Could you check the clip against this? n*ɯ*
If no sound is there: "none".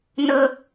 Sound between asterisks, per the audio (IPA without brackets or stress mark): ə